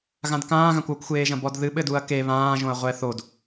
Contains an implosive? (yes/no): yes